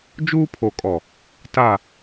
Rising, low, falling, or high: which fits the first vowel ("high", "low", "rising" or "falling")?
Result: high